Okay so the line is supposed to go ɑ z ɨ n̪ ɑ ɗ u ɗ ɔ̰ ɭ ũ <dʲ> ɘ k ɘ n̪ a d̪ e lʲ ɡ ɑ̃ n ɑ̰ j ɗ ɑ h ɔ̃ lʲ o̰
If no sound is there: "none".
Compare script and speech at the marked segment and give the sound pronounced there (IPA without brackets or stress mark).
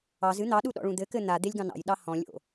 d̪